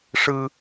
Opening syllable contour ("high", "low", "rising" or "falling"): high